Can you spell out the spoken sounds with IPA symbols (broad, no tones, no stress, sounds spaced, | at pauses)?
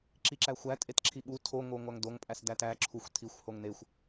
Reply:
ǁ i ǁ æ xʷ æ tʼ e t ǁʰ i ɓ u tʰ o ŋ o ŋʷ æ ŋ d o ŋ pʼ æ s d æ t æ ǁʰ u xʷ tʰ i xʷ h o ŋ n e xʷ